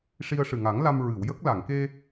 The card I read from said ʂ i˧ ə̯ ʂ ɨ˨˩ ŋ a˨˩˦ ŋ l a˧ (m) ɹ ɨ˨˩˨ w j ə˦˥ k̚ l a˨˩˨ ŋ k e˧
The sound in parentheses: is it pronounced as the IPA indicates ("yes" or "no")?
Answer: yes